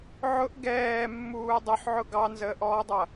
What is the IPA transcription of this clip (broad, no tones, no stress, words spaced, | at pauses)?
ʕʊʔ ɡɛːmːuː dˤʊħʕʊ ɡɑnzəːʔɔːdˤʌ